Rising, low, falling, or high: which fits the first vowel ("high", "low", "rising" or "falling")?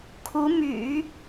rising